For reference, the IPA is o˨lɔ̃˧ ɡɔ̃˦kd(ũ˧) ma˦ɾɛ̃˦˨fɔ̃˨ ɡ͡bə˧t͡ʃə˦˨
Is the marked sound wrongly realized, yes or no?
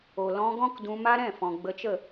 no